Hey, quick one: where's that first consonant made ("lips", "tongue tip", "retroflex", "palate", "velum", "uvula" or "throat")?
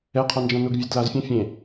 uvula